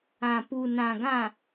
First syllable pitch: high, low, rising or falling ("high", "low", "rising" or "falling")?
low